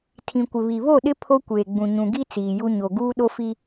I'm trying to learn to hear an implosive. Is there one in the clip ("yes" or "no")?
yes